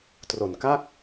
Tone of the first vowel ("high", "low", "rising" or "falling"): low